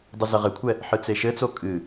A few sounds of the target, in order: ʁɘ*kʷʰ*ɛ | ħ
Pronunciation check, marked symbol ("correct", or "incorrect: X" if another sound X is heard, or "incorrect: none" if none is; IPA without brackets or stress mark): correct